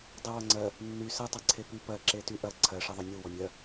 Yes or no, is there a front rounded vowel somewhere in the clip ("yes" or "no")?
yes